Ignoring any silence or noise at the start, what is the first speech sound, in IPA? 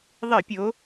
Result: ðˤ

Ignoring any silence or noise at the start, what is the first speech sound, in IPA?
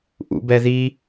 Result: ʔ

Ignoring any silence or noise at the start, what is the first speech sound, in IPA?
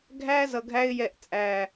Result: ɡʱ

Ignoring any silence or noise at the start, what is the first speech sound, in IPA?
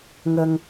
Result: ŋ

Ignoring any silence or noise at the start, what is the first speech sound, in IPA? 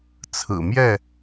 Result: t͡sʰ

